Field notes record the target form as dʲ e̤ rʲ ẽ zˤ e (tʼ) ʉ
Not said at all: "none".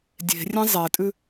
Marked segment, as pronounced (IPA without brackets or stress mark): tʼ